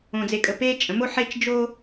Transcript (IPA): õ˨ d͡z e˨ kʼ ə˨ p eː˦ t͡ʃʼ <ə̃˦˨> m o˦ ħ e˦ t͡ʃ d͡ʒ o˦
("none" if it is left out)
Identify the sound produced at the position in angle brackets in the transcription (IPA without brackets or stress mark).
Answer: ə̃˨˦